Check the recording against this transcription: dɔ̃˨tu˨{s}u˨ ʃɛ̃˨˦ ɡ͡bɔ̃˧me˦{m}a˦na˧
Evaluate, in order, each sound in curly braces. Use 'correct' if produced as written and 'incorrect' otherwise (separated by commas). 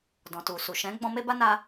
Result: correct, incorrect